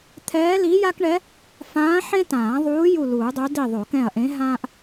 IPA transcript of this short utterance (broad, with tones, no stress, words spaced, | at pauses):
t̪ʰɛː˧˥li˧˥ja˥kɳɛ˧˥ | fãː˧˥ħẽ˥ tãː˨˩˦ðˤuː˧˥ ju˦˨luː˨˩˦dˤo˧˥ di˦˨ðˤo˨˩˦ kɛ̃˦˨ɐ̯ʔẽ˧˥ɦãː˥ʔ